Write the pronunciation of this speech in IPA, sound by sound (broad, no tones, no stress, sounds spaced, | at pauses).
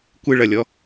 kʷ ɨ ɭ ɐ lʲ ɔ